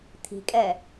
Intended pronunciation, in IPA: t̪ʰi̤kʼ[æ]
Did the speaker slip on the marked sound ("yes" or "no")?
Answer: yes